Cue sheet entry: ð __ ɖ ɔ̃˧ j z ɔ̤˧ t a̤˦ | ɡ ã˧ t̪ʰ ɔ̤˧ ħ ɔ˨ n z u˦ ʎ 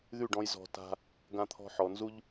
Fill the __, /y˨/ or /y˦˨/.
y˦˨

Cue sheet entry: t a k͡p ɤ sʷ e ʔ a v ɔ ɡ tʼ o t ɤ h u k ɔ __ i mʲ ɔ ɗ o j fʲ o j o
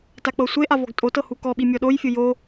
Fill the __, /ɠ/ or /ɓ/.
ɓ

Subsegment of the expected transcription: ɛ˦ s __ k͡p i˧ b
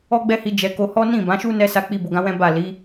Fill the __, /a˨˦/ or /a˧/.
a˧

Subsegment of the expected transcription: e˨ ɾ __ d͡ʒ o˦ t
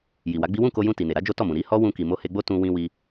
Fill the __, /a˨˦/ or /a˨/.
a˨˦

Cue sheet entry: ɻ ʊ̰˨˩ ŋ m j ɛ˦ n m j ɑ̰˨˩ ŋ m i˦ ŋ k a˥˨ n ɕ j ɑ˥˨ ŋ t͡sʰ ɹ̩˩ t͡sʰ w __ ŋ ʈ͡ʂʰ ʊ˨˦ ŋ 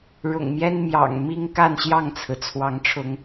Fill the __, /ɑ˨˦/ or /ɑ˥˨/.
ɑ˨˦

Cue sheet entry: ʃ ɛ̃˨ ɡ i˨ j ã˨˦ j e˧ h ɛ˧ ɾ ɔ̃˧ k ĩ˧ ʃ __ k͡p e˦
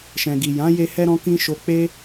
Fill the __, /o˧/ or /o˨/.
o˧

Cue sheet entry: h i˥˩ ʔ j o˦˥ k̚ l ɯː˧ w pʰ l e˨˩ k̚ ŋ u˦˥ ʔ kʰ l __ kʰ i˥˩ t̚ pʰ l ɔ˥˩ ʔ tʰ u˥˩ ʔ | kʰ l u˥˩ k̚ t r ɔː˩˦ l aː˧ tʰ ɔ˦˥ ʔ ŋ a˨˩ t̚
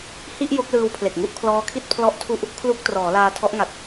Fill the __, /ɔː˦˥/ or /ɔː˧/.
ɔː˦˥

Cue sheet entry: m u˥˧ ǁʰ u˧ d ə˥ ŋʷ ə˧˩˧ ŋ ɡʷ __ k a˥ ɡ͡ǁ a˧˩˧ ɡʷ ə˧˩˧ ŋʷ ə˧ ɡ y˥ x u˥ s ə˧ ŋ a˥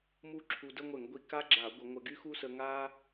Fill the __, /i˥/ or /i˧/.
i˧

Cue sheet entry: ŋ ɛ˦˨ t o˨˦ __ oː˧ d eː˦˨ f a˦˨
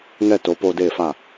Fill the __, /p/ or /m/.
p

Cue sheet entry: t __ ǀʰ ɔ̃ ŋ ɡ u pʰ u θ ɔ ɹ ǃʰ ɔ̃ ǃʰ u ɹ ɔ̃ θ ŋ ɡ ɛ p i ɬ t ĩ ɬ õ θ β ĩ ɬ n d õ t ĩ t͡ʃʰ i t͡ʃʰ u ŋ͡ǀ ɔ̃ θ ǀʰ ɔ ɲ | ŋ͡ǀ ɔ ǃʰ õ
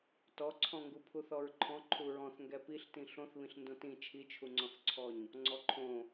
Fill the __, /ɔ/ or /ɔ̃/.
ɔ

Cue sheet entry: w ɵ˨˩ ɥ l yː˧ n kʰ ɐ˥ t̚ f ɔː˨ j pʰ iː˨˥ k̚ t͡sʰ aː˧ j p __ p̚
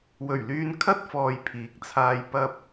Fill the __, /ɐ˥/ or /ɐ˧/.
ɐ˧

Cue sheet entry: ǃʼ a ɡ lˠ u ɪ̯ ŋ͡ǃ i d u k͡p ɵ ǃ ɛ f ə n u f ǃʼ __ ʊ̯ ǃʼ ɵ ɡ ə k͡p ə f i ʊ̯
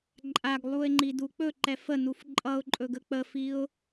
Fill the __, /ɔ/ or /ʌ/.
ʌ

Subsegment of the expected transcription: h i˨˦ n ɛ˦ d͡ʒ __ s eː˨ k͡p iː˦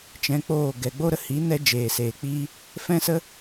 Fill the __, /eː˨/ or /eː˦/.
eː˨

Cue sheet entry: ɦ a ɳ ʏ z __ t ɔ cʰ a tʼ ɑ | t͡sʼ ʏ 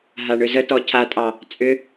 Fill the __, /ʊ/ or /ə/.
ə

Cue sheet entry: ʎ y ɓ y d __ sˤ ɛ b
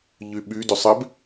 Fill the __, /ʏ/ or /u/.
ʏ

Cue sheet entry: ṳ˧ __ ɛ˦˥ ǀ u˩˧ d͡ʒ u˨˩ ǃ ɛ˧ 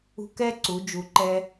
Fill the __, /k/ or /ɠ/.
k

